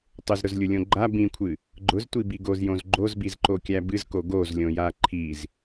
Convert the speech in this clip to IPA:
tˤʊzɾʊzlʲʊlʲõ ɡ͡ǃa bĩkʷʰɨ | ɡ͡ǃʊztʷibi ɡozjõz ɡ͡ǃozbizǃokʲæ bɨzko ɡozlʲõja ǃʰiz

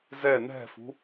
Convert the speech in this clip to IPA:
zɛ nɛ̤fṳ

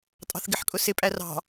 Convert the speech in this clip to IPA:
tʼɑ̤θɡɪħkʼʊsɪ pʼærɑ̤

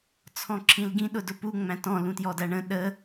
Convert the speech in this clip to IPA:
t͡sʰɔ̃ǁʰĩlɡĩ ɗʊdʊpu ŋ͡mæ̃tɔ̃ lũtjɔdæɳə̃ ɗə

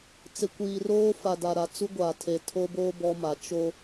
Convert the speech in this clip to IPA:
t͡sɪ˨kʷiː˨roː˦ fa˨da˨ɾa˨ t͡su˦ɡʷaː˨tʰe˨ tʰo˦boː˦ bɔ˦ma˨˦ t͡ʃo˦

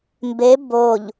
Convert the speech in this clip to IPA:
mbe boʎ

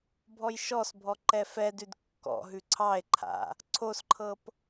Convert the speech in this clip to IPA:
bʱɔjʃɔsbʱɔ ǃɛfɛdʉd kːɔ̰ɦʉ ǀʰɑe̯ǃʰa̰ | ǀʰosǃʰɤp

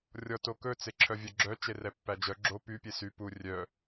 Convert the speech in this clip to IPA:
rʲɔtokɵ t͡seǁʰœvʲœɡ͡ǁœ t͡ʃerɛpːæd͡ʒœ ɡ͡ǁo py pʲesy pu rʲœ

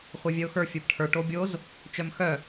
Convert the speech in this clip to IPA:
χʷevʲœʊ̯xə˞ fʲə˞bʈʰə˞ʈ obʲoz | t͡ʃœmxœ

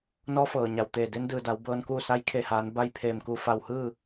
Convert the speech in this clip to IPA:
nɔː˧˥fɤː˩ɲa˩w t̪eː˧˩ de˧˥ndɯː˩da˩˧w bɤː˧nkuː˥˨ sa˧˥jkʰe˧˩haː˩˧n ba˥˨jpʰeː˧˩mku˧ fa˧˩whɯː˥˨

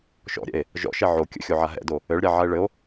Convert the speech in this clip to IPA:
ʃɔ̰ɾʲɛ̰e̯ | ʒɔ̰ʃɛ ʕo kʲə̰xʲoʕa ɦɛ̰do | ɘɭɾʲaʕae̯ ɭɘo̯

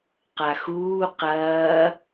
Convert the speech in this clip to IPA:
qaxuː qɐː

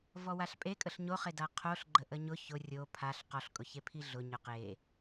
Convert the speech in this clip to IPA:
vɔwaɬpʼekʼəɬ ɲoχeda qʰoɬ ɡ͡ǃəʔəɲʊ çʊ rʲo pʰaɬ qɔɬkʼʊçepʰi ɮʊ ɲʊqe

